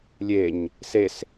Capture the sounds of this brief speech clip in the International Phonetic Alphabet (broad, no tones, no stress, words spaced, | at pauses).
lʲeɲ | ses